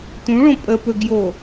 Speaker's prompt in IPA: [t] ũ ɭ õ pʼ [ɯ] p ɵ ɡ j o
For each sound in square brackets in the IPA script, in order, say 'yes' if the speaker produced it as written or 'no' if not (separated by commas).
yes, no